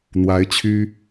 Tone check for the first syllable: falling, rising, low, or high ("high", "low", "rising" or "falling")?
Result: rising